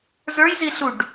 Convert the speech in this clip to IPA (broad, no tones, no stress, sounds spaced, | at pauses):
z ə˞ j z i ɬ u ɖ